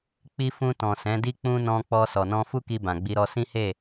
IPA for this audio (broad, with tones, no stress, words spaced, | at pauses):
k͡pi˦ fũ˧tɔ̃˨ sɛ̃˨˦di˦k͡pũ˦ nɔ̃˧k͡pɔ˧ sɔ˨nɔ̃˧fu˦ki˧ bã˨ɡ͡bi˧ɾɔ˧ sĩ˦he˦˨